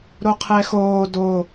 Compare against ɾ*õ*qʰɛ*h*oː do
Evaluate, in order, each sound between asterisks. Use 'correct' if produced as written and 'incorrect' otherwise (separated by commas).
incorrect, incorrect